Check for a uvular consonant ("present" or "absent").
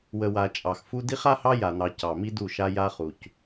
present